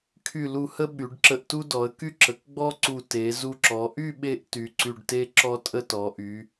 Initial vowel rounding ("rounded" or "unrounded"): rounded